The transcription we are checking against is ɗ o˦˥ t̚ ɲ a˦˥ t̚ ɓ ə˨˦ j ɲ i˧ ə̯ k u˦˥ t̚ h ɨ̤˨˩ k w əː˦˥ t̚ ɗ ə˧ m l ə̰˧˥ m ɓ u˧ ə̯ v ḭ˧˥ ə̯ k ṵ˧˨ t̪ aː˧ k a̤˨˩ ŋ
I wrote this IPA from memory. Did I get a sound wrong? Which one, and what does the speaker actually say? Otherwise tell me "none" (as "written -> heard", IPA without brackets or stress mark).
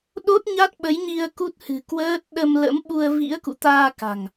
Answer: none